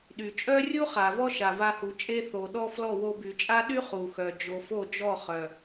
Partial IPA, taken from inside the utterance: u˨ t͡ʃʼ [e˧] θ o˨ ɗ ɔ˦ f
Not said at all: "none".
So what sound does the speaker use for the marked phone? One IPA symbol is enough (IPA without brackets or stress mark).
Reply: e˧